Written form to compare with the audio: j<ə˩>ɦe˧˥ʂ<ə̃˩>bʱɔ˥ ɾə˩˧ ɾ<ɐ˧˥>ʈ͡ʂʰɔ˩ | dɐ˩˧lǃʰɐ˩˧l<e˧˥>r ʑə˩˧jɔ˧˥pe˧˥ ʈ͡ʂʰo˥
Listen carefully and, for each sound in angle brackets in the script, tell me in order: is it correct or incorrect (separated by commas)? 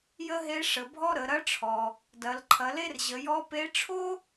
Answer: incorrect, incorrect, correct, incorrect